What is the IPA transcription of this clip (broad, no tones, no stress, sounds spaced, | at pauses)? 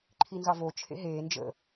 ǃʰ i n z ɑ v o t͡ʃʰ ḛ ɦ eː n d͡ʒ ə̰